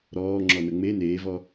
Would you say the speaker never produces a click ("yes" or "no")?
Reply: no